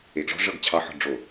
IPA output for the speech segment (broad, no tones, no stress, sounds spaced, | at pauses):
e ɡ ʐ ɔ̤ ʐ ɤ ɡ t͡ɕʰ ɑ ħ ɔ̤ ɖ͡ʐ o